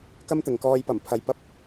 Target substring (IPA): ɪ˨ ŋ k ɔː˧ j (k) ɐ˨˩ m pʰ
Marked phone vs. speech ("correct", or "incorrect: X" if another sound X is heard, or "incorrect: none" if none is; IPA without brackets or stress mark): incorrect: p